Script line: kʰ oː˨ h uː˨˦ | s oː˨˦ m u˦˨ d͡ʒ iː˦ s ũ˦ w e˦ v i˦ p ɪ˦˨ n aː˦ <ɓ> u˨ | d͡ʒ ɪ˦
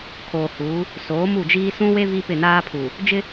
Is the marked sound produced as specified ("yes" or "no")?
no